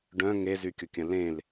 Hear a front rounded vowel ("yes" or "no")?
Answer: yes